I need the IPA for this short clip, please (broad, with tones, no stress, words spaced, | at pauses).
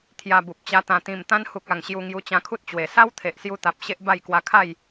t̪ʰja˧bu˨p̚t͡ɕa˧ t̪ã˨˩t̪ĩ˨˩m t̪ã˧nhu˨k̚a˨˩ŋ ɕju˧ŋju˧ t͡ɕã˧kʰu˦t̚t͡ɕwe˨˩ sa˦wt̪ʰe˨ʔsju˧t̪a˨p̚ ɕe˦ʔba˥˧j kwa˧kʰa˥˧j